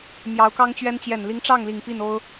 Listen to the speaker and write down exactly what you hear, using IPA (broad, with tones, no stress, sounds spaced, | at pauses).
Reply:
m j ɑ˧˥ ʊ̯ k ɑ˥ ŋ t͡ɕ ɥ ɛ˥ n t͡ɕ j ɛ˨˩ n l i˧˥ ŋ ʈ͡ʂ ɑ˥˩ ŋ l i˨˩ ŋ p i˥˩ n o˥ ʊ̯